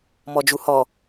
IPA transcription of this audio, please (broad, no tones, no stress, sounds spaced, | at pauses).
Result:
m ɔ d͡ʒ u h ɔ